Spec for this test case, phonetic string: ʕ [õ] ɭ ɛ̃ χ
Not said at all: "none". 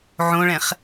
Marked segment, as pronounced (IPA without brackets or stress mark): õ